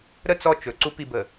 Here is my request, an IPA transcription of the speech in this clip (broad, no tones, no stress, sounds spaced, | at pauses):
ɾ ə t͡s ɔ t͡ʃ ɵ ǀ u p i b ə